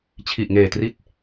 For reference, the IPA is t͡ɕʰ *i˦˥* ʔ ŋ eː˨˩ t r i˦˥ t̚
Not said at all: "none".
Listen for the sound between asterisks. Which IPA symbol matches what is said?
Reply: i˨˩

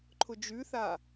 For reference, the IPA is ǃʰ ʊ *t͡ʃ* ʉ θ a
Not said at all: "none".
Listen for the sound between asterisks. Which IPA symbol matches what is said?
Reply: d͡ʒ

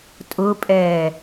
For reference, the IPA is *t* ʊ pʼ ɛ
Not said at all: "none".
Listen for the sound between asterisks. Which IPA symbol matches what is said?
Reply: tʼ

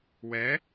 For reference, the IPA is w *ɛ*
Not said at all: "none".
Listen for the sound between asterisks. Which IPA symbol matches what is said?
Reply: ɛ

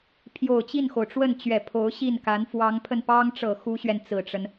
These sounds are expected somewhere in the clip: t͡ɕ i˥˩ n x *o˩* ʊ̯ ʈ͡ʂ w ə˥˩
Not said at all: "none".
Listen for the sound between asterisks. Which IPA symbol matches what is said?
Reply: o˩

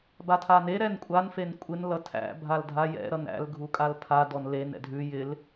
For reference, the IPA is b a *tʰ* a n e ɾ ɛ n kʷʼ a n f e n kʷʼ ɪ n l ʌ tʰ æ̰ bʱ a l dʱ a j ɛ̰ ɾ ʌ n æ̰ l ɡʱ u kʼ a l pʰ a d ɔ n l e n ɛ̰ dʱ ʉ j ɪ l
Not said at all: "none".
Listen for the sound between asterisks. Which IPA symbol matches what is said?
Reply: tʰ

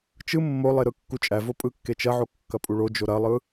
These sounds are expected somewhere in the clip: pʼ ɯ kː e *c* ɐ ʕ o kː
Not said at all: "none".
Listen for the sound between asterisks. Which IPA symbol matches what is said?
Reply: t͡ʃ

